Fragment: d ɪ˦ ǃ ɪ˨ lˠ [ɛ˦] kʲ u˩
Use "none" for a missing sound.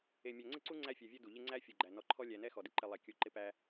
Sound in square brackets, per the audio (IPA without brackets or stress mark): ɛ˩